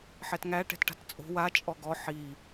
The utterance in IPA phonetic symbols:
ħɛtŋæ ʈɛ̤tʈa̤tt͡sʼo̤ wa t͡ʃʼɔɡɔ ħi

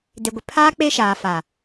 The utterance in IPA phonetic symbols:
de˨ɡʷɪ˨ pʰaː˦ k͡pe˦ʃaː˨fa˨

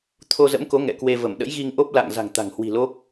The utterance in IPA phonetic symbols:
t̪ʰo˧zə̰˧˥mko˨˦ ŋɛ̰˧˨kwe˧ və˧˩mɗə̰˧˥jɣi˧ŋʔo˦˥p̚ la̰˧˨ŋ za̤˨˩ŋt̪a̤˨˩ŋhwi̤˨˩ lo˦˥k̚

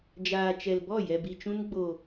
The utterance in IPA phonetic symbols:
d͡ʒaː˨t͡ʃɛ˨lbɔ˦˨ jɛ˨bi˨t͡ʃũ˧n ɡ͡bo˨

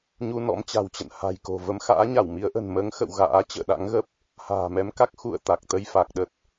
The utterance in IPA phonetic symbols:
ɲu˧nɔ̰˧˥mt͡ɕa̤˨˩wt͡ɕə̰˧˨n ha̤˨˩j ko̤˨˩ və˨˦mxa̰ː˧˥ɲa˧˩w mi˨˦ə̯ʔə̤˨˩n məː˨˦ŋxə̰˧˨w ɣa̰ː˧˥ t͡ɕə̰ː˧˨ɗa̰˧˥ŋɣə˦˥p̚ | ha̤ː˨˩mɛ˨˦mka˦˥k̚ xṵ˧˨ə̯ t̪a˨˩k̚t̪ə˧jfa˨˩k̚ɗə˦˥t̚

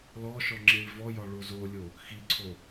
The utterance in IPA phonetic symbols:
lɔʃɔ ŋ͡ǁiɭvɔjɒ ɭozolʲo | xiǀʰo

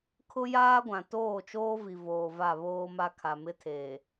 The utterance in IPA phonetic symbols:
kʰʊ˦jaː˦ɡʷã˨ toː˦˨t͡ʃoː˦vi˨ voː˨va˦˨βoː˦ma˦ kʰa˨mɪ˦tʰeː˨

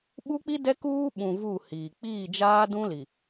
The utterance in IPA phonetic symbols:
ɓu˦k͡pi˦ dɛ˦kuː˦ɓũ˨ vu˦˨hiː˨ k͡piː˦˨d͡ʒaː˦ dũ˦li˨

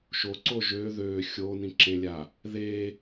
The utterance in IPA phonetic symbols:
ʃoǀo ʒø ðø xʲonĩǁẽlʲa | ðe

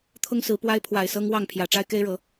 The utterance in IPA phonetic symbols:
t̪ʰʊ˦ŋsɹ̩˨˦pwa˦ɪ̯ pʰwa˨˩ɪ̯ sɤ˦ŋ wɑ˥˨ŋpʰjä˨˩ʈ͡ʂa˦ɪ̯ ke˦ɪ̯ɻɤ˨˦

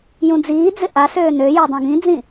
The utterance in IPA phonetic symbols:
jũd͡ziːd͡zɪ ʔasøː nøjø dˤũɡĩd͡zĩ

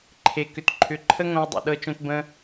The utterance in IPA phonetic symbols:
ǃʰe˨kʏ˨tǃʰʏ˨˦ǃʰə˦ ŋõ˧wdˤṵ˨ɗɤ˧t͡ʃõ˧t bə̃˦

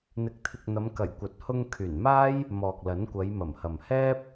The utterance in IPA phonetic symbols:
n̪ɪ˨k̚t̪ʰɪ˨k̚n̪ɐ˨˧mkɐ˨˩j kʷɐ˨˥t̚hʊ˧ŋkʰyː˨˩nmaː˥j | mɔː˨k̚lɐ˨˥nkʷɐ˨˧j mɐ˨˩mhɐ˨m hɛː˥p̚

